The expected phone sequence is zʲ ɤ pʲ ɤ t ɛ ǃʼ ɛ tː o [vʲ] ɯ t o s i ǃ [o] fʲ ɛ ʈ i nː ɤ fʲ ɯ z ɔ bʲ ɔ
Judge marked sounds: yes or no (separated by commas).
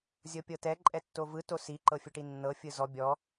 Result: no, no